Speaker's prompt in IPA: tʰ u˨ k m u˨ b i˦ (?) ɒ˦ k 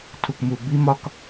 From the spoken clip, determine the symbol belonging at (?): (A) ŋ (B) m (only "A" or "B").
B